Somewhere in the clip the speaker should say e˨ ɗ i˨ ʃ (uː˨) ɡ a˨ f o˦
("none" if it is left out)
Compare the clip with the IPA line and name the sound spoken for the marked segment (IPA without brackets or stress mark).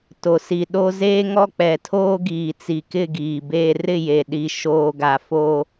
oː˨